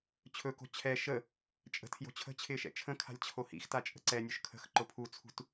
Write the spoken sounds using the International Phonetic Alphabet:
t͡ɕʰ ɵ k o̤ t͡ɕʰ ɛ ʃ ə | t͡ʃʼ ə̤ tʰ j o̤ t͡ɕʰ ə̤ t͡ɕʰ ɪː ʃ ɛ̰ t͡ʃʰ ə̃ kʰ a̤ lʲ t͡ɕʰ o h ḭ x t a t͡ʃʼ ə̤ ǀ ɛ nʲ ʊ ʃ kʰ ə̤ x ǃ ʊ pʰ u t͡sʰ ṳ t

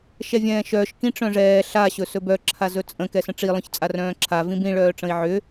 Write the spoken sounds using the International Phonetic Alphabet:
ʃ ɛ vʲ ɛ̃ː ʃ œː ʃ k ĩ ʈ͡ʂ œ̃ ʐ ɛː ɬ a ɕ ɵ s ɵ b œ ǁʰ a z ɵ t͡sʼ ə̃ k ɛ s ə̃ ʈ͡ʂ i lˠ œ̃ ç t͡sʼ a r œ̃ː ǁʰ a v ĩ b ĩ ɭ œː ʈ͡ʂ ə̃ i̯ ʕ ʏ

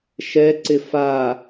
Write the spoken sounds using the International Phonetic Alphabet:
ʃ ɛ ǀ ɪ f a

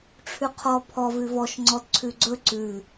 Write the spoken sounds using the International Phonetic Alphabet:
ʈ͡ʂʰ ʉ qʰ ɔ pʰ ɔ v ʉ v ɔ ʃ ŋ͡ǀ ɔ d ǀʰ ʉ ɡ͡ǀ ɵ ǀ ʉ

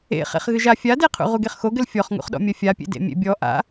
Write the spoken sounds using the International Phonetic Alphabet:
ḛ χ ḛ χ ɣ ɨ ʒ a fʲ a d e qʰ ṵ ʁ u ɡ e χ x o ɡ ɘ l fʲ ɔ χ ŋ ṵ χ ɗ ɔ̰ mʲ ɐ fʲ a pʲ ḛ d ḛ mʲ ḛ bʲ ɔ ʔ a̰

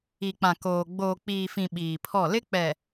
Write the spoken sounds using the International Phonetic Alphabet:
i˨ k͡p ã˨ k oː˨ ɡ͡b oː˨ k͡p iː˨ f ĩ˨ ɓ iː˨ pʰ ɔ˦˨ l ɪ˦ k͡p ɛ˨

